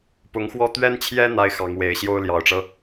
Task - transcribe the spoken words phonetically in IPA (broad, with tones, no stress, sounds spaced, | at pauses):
p ʊ˧˥ ŋ x w ɔ˥˩ t̪ ɥ ɛ˥ n t͡ɕʰ j ɛ˥ n̪ a˥ ɪ̯ x ɑ˧˥ ŋ w e˧˥ ɪ̯ ɕ j o˥ ʊ̯ l j ɑ˨˩ ʊ̯ ʈ͡ʂ ɤ˦